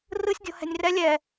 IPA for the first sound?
r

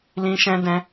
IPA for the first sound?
l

